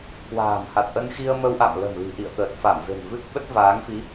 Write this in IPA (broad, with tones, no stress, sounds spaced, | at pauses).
k w a̤ː˨˩ m h a˨˩ t̚ ʔ ə˧ n x i˧ ə̯ m ə˧ w ʔ a̰˧˨ m l ə̤˨˩ m l i̤˨˩ ʔ ḭ˧˨ ə̯ t̪ əː˨˩ t̚ f a˧˩ m v e̤˨˩ n v ɨ˦˥ k̚ ɓ ə˦˥ t̚ v aː˨˦ ŋ f i˨˦